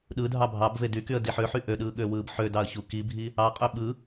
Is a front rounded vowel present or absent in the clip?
present